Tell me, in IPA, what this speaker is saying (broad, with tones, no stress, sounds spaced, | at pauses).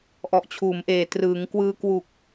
ʔ ɔ˨˩ ʔ t͡ɕʰ uː˩˦ m ʔ eː˨˩ t r ɯː˩˦ ŋ k w ɯː˧ k w u˨˩ k̚